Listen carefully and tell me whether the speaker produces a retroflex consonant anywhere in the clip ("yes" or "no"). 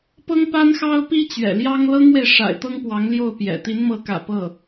yes